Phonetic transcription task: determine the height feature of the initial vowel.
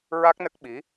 low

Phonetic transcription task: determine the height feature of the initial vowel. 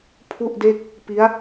high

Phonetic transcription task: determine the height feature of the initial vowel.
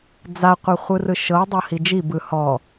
low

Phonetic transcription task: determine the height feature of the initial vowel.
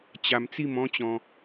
low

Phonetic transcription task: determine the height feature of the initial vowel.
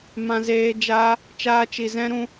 low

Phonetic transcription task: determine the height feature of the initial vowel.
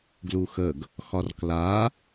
high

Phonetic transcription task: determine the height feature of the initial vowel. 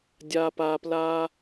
low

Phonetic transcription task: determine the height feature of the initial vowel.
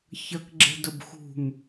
low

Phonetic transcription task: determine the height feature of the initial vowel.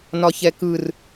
low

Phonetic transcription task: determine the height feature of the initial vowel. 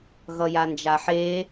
mid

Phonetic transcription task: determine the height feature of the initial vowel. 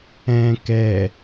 mid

